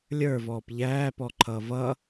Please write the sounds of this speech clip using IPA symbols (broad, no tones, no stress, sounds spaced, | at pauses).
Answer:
lʲ ə˞ v ɔː p ʎ æː p ɔ ǃʰ ʌː v ʌ